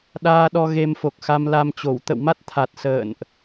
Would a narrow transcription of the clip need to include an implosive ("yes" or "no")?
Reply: yes